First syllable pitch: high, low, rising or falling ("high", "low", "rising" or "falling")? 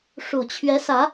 low